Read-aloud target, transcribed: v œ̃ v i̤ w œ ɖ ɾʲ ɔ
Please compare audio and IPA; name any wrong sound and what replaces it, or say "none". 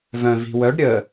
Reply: ɔ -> ə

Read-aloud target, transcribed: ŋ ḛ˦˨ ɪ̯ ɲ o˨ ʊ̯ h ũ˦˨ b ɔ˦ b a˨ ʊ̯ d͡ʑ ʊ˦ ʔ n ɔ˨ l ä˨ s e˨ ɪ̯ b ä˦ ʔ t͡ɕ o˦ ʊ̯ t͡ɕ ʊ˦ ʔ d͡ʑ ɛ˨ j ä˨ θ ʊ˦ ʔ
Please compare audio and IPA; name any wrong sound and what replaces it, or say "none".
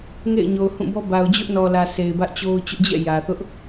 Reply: ɛ˨ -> ɛ̰˦˨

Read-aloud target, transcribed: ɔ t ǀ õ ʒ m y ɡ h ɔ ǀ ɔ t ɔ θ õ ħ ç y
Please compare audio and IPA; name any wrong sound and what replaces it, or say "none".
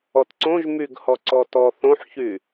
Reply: none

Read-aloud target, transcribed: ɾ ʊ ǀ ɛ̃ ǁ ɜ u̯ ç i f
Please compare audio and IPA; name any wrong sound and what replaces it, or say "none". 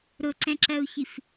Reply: none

